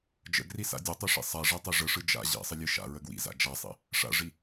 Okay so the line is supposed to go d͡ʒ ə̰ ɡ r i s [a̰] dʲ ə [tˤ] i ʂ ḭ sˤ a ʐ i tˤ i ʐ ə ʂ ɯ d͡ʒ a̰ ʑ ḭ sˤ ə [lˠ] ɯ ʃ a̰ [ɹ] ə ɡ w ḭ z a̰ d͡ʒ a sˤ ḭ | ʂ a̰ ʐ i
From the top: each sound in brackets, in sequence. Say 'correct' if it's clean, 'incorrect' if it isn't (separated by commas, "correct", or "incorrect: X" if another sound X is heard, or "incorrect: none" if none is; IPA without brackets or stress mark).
correct, correct, incorrect: lʲ, correct